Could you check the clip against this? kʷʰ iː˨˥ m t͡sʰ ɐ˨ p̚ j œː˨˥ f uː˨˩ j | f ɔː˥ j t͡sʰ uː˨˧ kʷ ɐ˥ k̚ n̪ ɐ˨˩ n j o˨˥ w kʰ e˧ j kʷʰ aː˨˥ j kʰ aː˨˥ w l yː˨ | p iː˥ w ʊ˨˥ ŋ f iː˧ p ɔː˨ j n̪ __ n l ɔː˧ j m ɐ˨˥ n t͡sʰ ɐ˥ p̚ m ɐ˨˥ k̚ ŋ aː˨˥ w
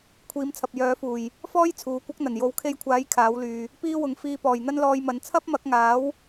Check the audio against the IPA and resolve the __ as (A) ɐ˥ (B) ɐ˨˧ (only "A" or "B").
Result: A